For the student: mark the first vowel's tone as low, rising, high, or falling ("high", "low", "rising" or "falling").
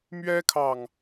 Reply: high